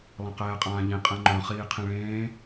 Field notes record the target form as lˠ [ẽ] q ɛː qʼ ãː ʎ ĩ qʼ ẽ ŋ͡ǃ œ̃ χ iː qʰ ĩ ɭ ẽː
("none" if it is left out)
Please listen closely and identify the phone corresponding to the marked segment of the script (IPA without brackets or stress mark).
ẽ